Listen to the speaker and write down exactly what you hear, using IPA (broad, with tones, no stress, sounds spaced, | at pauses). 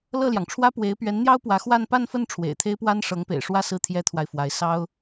l ɤ˥˩ l j ɑ˩ ŋ ʈ͡ʂʰ w ä˥ p w e˧˥ ɪ̯ p ɥ ɛ˧˥ n n̪ j ɑ˥ ʊ̯ p w ä˧˥ x w a˥˧ n p a˥˧ n f ə˥˩ n ʈ͡ʂʰ w ḛ˨˩ ɪ̯ t̪ʰ e˥ ɪ̯ p w a˥ n ʂ ɤ˧˥ ŋ p ḛ˨˩ ɪ̯ ʂ w ä˥˧ s ɹ̩˥˩ t̪ʰ j ɛ˥ t̪ʰ w a˨ ɪ̯ f w a˧˥ ɪ̯ s ɑ˥ ʊ̯